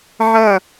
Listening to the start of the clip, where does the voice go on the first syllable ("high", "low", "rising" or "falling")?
falling